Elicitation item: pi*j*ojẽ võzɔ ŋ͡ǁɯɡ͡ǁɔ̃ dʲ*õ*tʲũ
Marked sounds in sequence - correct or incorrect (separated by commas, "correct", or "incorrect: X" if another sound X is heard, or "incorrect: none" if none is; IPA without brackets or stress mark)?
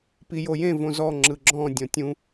correct, incorrect: ɔ̃